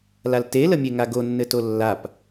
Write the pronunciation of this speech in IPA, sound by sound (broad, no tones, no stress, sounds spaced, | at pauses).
l a l t e l ə mʲ e ŋ a ɡ o nː ɘ t o lː a p